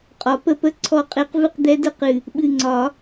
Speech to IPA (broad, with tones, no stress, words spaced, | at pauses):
qʼɒ˨˩˦pə˥˨ pə˥˨ ǀʰɔ˧˥qʼe˧˥q vɨ˥˨qd̪ɛ˧˥də˧˥ qɨ˧˩ | ɓɨ˧˩ŋ͡ǀɒ˨˩˦